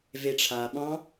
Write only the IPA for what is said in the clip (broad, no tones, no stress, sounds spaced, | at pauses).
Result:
v e ʈ͡ʂʰ a ɓ ɑ̃